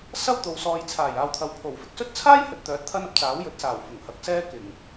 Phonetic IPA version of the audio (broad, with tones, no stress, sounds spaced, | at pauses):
s ɐ˥ w t̪ o˨ w s ɔː˨ j t͡sʰ aː˨˩ j aː˨ w t̪ʰ ɐ˨˥ w pʰ o˨˩ w f ɪ˧ k̚ s ɵ˥ t̚ t͡sʰ aː˥ j h ɵ˨ t̚ t̪ œː˨˥ t̚ t̪ʰ ɐ˥ n ɐ˥ p̚ t͡s aː˨˥ w j ɵ˨˥ t̚ s aː˨˩ w f ʊ˨˩ ŋ h ɐ˨˥ k̚ s ɛː˥ k ɪ˨˩ ŋ